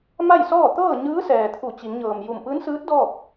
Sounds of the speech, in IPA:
m a˥˨ j s ɔː˥˨ t̪ ɤː˥˨ ɲ ɯː˧˥ s ɛː˩ t̪ʰ u˧˩ t͡ɕ i˩˧ ŋ ɲ ɤː˩ m j u˧˩ m p ɯː˧˥ n s ɯː˧˥ t̚ d ɔː˥˨ p̚

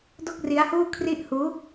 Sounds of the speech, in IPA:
d o˥˩ k̚ r i˦˥ a̯ h uː˥˩ kʰ r i˥˩ ʔ h uː˦˥

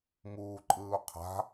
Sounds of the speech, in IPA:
m uː ǃʼ ɯː u̯ qʰ a̤

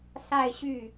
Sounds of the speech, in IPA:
s a˥˧ ɪ̯ ɕ y˥˩

